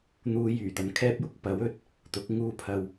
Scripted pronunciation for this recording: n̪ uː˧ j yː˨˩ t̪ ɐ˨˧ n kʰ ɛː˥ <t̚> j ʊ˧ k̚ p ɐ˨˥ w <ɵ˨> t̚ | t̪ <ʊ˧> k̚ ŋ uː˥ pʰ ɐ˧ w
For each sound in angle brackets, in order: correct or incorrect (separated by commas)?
incorrect, correct, incorrect